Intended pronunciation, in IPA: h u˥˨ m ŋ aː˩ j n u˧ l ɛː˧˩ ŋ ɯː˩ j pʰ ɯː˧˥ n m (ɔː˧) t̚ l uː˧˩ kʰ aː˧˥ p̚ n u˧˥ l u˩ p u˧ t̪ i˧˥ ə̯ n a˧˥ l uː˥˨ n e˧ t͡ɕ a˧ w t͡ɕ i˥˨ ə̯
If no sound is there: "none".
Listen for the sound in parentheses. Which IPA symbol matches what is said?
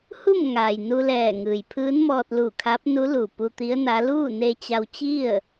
ɔː˧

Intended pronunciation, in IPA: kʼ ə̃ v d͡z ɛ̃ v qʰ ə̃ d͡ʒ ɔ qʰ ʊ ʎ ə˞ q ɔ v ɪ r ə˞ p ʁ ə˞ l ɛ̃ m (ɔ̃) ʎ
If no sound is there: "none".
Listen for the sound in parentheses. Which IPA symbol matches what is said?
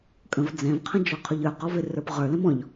ɔ̃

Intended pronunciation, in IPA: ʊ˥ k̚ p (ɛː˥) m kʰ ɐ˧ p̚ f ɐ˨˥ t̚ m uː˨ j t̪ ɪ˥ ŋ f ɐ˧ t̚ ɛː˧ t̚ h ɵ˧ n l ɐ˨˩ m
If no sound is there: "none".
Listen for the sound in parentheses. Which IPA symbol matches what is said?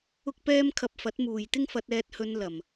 ɛː˥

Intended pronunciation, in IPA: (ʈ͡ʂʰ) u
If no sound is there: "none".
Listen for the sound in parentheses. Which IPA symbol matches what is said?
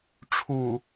ʈ͡ʂʰ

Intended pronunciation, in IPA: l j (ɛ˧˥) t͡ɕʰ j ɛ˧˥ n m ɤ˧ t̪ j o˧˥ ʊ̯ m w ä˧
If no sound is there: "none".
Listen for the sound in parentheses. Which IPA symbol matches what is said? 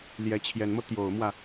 ɛ˧˥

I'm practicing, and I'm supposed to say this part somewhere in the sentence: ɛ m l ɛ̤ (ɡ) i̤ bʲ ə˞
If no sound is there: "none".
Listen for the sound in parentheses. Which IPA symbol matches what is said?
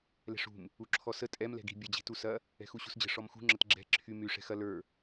ɡ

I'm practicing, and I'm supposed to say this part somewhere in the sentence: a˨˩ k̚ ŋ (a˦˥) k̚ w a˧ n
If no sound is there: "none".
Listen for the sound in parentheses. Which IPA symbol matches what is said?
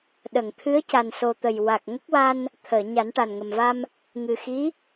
ə˦˥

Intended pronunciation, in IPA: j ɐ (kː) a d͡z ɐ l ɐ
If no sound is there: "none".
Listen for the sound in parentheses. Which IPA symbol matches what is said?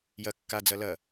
kː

